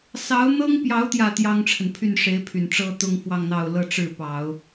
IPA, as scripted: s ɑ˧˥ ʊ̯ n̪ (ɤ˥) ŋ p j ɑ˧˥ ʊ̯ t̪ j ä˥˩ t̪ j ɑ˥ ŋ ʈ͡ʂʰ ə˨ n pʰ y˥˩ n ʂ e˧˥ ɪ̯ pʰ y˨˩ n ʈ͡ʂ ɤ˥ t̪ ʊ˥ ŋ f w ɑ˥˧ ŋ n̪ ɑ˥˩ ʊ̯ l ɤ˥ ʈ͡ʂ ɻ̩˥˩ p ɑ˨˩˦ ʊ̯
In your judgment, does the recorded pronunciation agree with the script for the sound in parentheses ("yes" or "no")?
yes